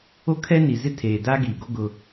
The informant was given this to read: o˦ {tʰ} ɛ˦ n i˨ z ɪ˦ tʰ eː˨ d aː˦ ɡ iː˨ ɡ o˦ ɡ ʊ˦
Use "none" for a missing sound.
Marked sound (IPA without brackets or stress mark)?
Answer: kʰ